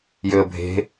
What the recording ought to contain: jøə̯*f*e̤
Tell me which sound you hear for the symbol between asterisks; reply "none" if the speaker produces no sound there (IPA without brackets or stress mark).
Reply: bʱ